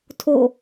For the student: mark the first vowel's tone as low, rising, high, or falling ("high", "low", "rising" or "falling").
falling